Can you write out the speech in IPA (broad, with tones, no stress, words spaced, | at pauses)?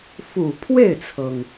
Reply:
fu˨˩ pʰwe˥˩ɪ̯t͡sʰɤ˩ŋ